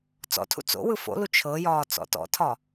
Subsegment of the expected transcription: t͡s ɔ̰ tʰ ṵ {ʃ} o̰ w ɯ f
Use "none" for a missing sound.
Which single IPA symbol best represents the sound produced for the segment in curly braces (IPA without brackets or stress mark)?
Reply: t͡s